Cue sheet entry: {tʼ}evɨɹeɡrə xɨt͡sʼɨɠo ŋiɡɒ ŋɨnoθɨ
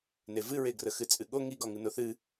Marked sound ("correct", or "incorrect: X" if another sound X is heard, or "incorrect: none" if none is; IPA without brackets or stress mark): incorrect: n